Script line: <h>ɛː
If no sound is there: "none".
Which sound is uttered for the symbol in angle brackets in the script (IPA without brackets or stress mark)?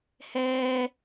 h